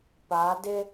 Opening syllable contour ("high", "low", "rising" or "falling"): rising